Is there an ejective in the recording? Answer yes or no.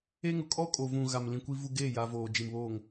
yes